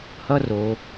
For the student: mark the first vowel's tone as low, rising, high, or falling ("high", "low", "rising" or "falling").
high